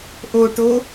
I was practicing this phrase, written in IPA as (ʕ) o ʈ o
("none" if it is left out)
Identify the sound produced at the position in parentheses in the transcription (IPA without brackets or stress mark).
ʔ